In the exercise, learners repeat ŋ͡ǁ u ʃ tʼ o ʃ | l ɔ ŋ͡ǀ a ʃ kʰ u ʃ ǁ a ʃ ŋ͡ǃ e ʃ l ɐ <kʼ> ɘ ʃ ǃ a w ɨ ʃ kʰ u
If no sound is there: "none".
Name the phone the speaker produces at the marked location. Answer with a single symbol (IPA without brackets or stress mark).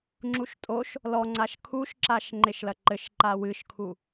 ǃ